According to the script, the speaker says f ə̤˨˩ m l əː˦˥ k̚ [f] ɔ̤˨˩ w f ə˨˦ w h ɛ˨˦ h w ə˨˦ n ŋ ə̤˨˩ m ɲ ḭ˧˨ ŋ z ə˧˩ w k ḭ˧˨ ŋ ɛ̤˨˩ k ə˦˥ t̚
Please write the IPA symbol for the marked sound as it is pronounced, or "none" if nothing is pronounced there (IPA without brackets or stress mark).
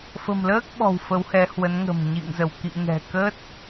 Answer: ɓ